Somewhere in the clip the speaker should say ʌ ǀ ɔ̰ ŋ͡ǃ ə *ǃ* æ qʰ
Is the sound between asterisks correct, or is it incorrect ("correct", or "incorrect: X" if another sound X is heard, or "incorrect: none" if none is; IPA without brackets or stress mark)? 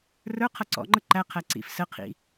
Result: correct